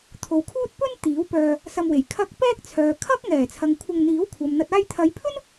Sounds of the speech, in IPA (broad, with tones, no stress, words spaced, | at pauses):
t̪ʰo˨wkʰuː˥t̚ pɵ˥n t̪iː˨˥wpœː˧ | sɐ˧mwe˨˩j kʰɐ˧k̚ pɛː˥k̚t͡sʰœː˨kʰɐ˥k̚ ŋɛː˨˩t͡sʰɐ˨ŋ kʷʰɐ˧ŋn̪iː˨˥wkʷʰɐ˨m n̪ɐ˨t̚aː˧jt̪ʰɐ˨˧jpʰɵ˥n